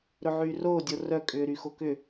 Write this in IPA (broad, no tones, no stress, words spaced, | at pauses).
ɾɵʕyːroːdʲo rœkʼʏː ɾyxokʏ